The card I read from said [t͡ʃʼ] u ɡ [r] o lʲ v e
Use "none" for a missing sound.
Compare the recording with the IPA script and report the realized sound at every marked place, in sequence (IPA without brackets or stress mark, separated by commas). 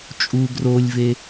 t͡ʃʼ, r